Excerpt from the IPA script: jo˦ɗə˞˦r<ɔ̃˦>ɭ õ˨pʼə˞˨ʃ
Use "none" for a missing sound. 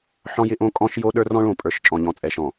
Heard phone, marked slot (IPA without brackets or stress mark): ɔ̃˦